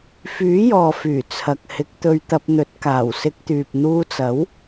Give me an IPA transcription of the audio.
fyː˨˥jɔː˨fyː˨˩ t͡sʰɐ˨k̚ hɪ˨˥k̚t̪ɵ˧ɥt̪ɐ˧p̚n̪ɵ˨˥t̚ kaː˨˩wsɪ˧k̚t̪yː˨p̚ n̪uː˧t͡sɐ˨˥w

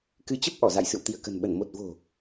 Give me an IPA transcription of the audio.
kɨ˨˦t͡ɕə˦˥p̚ ʔɔ˧˩za̰˧˨jsɨ̰˧˨w t̪i˧˩ə̯kə̤˨˩nɓə˧˩n mo˨˩t̚vo̤˨˩

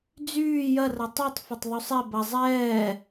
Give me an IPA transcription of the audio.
d͡zyː jɐrɐ tˤytˤfɐtˤ ðˤusˤɛ bɐ zˤɛː

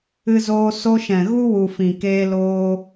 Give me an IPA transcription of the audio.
ɨ˧zoː˧ so˧ʃɛ̃˨ ɣu˦wu˨ fĩ˨keː˧ loː˧

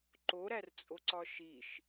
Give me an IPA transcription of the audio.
ǃoɾært͡sʼoǀɒ ʃiʃ

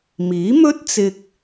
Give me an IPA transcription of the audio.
miː˨˥mɵ˥t̚t͡sɪ˧k̚

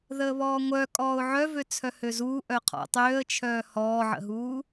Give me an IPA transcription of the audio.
ðəːβɔːŋʷœ kʼɔːʊ̯ʕœvø t͡sʰœhøzuː ʔœqʰɔ̰tˤøːə̯t͡ʃʰœː hɔːʕə̰ɦuː

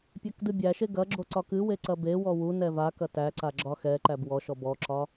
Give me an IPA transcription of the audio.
pʲækdɨbʲæʃe ɡɐɡ͡ǁo ǀɒkɨwe ǀɐbewɔ wu nɛvakɐ tæǀa ɡ͡ǁɒxɛǃæb wɔʃɔ bɔǁɒ

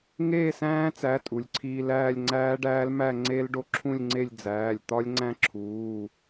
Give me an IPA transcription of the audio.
ŋeː˥˧sæ̃ː˦˥t͡sæ˩˧˩ tʼu˩lʲǀʰiː˧l æː˥˧lʲŋ͡ǀæː˦˥ɖæː˦˥lmæ˥˧ ŋ͡ǀe˦˥l ɖo˧ǁʰũ˥˧lʲŋ͡ǀe˥˧lʲd͡zæː˩˧˩lʲ t̪ɒ˦˥lʲŋ͡ǀæ̃˦˥ǁʰuː˩˧˩

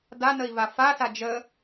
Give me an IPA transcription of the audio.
danəi̯ vafasa d͡ʒə

